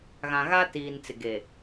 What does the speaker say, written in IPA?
ɣ ã˨ ɣ a˦ t iː˨ n t͡s ɪ˨ ɡ e˨

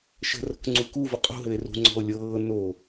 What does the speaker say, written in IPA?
ʃ ə̤ r ə̤ k ŋ͡ǀ u k u v ə qʼ ṳ ɦ ɘ e̯ r ṳ ŋ͡ǀ ɔ̤ o̯ lʲ ɤː n o

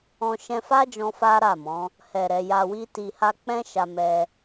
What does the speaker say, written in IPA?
ɔ̃˧ ʃ ɛ̃˧ f a˦ d͡ʒ ɔ̃˧ f a˦ ɾ a˦˨ m ɔ̃˨˦ | h ɛ˨ ɾ ɛ˨ j a˨ w i˧ t i˨ h a˧ k͡p ɛ̃˦ ʃ a˧ m ɛ˧

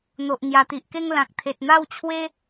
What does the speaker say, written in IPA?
n̪ o˨ ʔ ŋ j a˨˩ t̪ i˨ ʔ k e˥˧ ŋ l ã˨ k̚ t̪ʰ e˨ t̚ n̪ a˥˧ w t͡ɕʰ w e˦

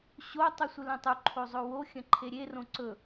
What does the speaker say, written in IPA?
ɕ o tˤ u sʷ ɨ l ɐ̃ tˤ u ǃʰ o zˤ o w o xʲ ɐ̃ ǃʰ e ɾʲ e r õ ǀ ɵ

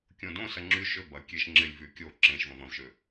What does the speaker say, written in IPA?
kʲ õ d õ s ɐ ŋ͡ǁ y ʃ ø b ɐ kʲ e ʃ ŋ͡ǁ ɪ lʲ v y kʲ o ǁ ẽ ʃ v ɐ̃ v ɐ̃ v ʃ ø

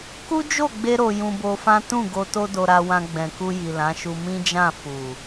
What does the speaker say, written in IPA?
k u˦ d͡ʒ o˦˨ ɡ͡b e˧ ɾ o˧ j ũ˧ b o˧ f ã˦ t ũ˦˨ ɡ o˧ t o˦ d o˧ ɾ a˧ w ã˧ ɡ͡b ɛ̃˨ k u˧ j i˨ l ã˨˦ ʃ u˧ m ĩ˦ d͡ʒ ã˦˨ f u˨

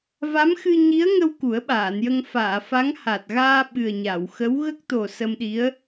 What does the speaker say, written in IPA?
v a˧˥ m x ɨ˧ ɲ i˧˥ ə̯ ŋ ə˧ w k u˨˩˦ ə̯ ɓ aː˨˩˨ n j ə˧ ŋ f aː˨˩˨ f a˧˥ ŋ h a˨˩ t̚ ɣ aː˧ ɓ ɨ˨˩ ə̯ ɲ a˨˩˨ w x ə˧˥ w ɣ ə˦˥ k̚ t̪ o˨˩ s ə˧ m ɗ i˧˥ ə̯

